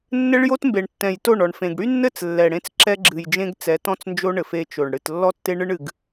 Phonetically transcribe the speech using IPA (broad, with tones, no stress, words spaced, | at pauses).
nːɘ˦ɭjo˦tmbe˨ɳ tːɛ̃˨jto˦˨ɳɔ˨ɳfẽ˨ɡ ɽy˦nːɘ˦˨t͡s lːɛ˨ɽẽ˦t͡s ǁɛ˦ɡ͡ǁɨ˨jd͡ʒẽ˦ɡt͡sɛ˨˦ tɔ̃˦t͡snd͡ʒo˦ɳɘ˨f e˦t͡ʃo˨ɳ ɽɨ˨t lːɔ˦tːe˦ɳɨ˦ɳ ɨ˨ɡ